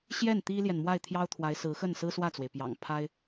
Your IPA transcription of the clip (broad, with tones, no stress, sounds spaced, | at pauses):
ɕ j ɛ˥˩ n t̪ i˥ l j ɛ˨ n m w a˥˩ ɪ̯ t̪ʰ j ɑ˥ ʊ̯ t̪ʰ w a˧˥ ɪ̯ s ɹ̩˧˥ x ə˥˩ n s ɹ̩˥ s w ä˥˩ t͡s w e˩ ɪ̯ p j ɑ̰˨˩ ŋ pʰ a˥ ɪ̯